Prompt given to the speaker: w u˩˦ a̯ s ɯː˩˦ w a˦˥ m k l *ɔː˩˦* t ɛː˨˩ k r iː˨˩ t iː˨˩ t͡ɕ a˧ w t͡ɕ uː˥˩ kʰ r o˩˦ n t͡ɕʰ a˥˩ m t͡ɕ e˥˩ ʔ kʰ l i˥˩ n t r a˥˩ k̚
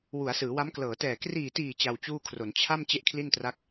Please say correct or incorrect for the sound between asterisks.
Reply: incorrect